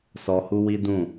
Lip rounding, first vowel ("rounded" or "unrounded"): rounded